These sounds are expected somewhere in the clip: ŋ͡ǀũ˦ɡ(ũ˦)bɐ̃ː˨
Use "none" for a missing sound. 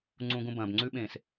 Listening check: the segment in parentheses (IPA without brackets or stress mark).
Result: ũ˦